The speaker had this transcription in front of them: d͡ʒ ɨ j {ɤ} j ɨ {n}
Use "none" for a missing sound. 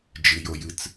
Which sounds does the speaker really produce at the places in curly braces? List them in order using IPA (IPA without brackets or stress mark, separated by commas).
o, t͡s